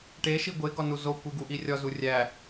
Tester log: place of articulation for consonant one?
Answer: retroflex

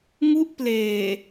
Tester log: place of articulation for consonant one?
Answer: velar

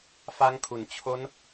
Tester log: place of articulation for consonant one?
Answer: labial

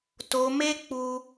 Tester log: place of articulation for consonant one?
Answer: alveolar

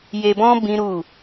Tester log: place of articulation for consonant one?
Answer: palatal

